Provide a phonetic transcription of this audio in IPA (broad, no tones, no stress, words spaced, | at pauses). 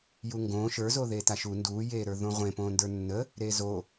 juŋɡõː ʃə˞zoðe taʃu nduːjeːɾə˞ ðõʁʷẽ põːndə˞nːə | ɾezo